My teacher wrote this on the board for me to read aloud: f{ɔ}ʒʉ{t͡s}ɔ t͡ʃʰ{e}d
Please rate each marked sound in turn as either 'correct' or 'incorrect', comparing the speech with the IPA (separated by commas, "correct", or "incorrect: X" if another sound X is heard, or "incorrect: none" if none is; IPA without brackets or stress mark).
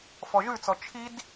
correct, correct, incorrect: i